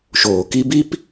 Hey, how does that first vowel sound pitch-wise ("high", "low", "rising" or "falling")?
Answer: low